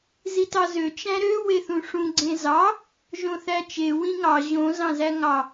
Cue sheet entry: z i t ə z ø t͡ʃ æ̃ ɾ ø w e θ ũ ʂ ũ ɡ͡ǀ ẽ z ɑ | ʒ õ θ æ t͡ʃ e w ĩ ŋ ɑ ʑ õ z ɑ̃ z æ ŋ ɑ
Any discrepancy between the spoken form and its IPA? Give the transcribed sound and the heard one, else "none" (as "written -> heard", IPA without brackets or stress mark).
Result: ə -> ɑ